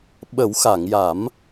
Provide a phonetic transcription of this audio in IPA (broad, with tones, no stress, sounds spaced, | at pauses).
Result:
ɓ ə˨˩˦ w x a˨˩˨ ŋ j a˨˩˦ m